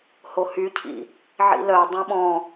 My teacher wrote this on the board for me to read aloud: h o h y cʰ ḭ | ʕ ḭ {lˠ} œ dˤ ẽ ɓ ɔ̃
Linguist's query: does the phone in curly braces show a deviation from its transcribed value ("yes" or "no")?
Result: yes